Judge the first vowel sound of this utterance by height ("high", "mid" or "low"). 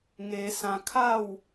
mid